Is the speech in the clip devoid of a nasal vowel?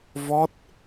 yes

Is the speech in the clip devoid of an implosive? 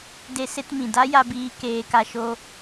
yes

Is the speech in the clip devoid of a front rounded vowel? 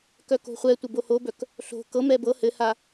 no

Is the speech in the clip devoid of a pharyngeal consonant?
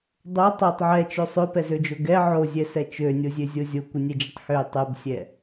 no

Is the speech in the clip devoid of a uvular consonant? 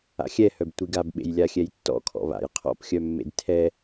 no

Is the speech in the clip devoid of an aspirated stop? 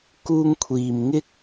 no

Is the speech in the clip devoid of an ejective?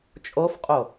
no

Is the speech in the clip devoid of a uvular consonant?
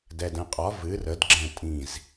no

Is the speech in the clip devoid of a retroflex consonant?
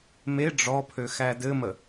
no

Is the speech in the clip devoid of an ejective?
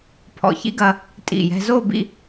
no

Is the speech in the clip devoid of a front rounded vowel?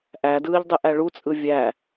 yes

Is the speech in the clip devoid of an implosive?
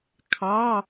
yes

